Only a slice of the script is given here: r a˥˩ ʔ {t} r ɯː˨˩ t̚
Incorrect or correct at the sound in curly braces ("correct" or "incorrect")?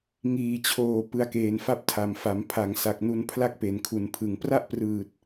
incorrect